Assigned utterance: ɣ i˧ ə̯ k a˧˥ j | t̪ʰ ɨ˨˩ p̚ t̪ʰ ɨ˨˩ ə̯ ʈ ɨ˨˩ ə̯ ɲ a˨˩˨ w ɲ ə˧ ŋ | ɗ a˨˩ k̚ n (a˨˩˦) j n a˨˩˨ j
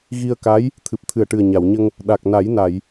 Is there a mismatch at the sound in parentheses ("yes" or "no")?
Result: no